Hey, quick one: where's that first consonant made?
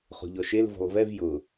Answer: uvula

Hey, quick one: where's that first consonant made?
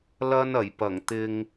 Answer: tongue tip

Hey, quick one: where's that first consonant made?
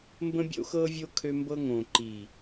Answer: lips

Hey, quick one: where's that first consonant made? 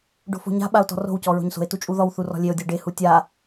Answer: retroflex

